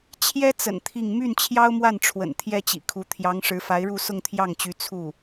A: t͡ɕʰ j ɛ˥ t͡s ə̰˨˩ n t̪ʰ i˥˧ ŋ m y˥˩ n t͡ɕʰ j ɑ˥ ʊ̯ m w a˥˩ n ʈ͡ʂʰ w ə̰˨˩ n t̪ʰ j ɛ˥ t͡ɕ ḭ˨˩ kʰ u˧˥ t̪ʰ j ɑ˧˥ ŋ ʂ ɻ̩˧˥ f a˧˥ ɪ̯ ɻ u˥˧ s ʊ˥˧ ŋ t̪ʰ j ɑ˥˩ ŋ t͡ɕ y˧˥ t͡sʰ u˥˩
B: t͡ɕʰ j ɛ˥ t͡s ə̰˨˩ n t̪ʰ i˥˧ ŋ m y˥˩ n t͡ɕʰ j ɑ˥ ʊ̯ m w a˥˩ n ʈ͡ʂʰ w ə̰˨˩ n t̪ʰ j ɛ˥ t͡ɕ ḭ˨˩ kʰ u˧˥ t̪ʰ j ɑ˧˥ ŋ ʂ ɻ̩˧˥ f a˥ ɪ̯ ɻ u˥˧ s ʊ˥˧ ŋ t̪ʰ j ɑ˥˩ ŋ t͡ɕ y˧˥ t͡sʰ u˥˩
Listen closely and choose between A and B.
A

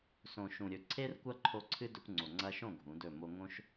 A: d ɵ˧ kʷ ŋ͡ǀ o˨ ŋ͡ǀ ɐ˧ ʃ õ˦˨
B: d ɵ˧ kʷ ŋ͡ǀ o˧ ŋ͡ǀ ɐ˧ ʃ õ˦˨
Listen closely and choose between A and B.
A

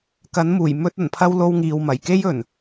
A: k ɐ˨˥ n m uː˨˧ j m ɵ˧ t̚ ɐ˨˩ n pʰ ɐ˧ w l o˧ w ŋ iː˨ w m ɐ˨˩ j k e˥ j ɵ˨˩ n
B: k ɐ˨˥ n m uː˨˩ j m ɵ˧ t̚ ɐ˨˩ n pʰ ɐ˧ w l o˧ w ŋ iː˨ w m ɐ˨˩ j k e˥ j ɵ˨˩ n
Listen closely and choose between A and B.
B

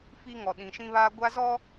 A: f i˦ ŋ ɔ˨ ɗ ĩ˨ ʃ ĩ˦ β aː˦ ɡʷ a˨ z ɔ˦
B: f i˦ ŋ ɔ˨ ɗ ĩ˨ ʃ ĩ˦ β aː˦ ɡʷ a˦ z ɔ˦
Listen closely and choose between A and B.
B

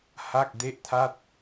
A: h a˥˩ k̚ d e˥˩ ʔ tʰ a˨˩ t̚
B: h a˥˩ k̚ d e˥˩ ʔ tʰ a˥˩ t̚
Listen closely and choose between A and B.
B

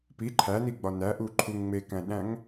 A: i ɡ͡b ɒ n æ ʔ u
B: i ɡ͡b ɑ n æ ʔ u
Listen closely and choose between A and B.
A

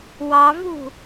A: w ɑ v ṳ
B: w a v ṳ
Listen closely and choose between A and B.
A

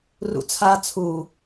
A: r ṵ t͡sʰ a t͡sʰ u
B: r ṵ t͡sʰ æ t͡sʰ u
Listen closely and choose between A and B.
A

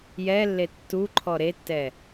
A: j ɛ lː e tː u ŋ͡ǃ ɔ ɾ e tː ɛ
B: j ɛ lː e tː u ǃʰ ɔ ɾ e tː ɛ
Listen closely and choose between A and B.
B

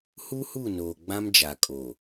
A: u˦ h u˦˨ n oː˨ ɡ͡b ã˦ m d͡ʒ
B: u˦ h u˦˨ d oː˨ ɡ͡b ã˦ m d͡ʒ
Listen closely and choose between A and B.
A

